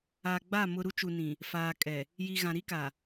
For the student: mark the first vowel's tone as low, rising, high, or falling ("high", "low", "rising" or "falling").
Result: low